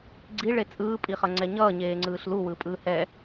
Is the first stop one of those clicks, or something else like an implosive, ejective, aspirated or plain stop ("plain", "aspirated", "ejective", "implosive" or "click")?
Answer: click